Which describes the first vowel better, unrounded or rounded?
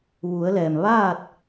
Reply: rounded